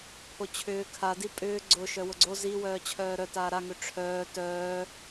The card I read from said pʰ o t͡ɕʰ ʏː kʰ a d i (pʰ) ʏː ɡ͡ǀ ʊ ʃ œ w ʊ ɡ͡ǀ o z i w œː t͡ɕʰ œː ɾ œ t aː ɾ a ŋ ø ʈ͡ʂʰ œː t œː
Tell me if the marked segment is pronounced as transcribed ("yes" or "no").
no